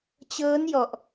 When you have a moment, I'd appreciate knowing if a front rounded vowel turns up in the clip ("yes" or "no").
no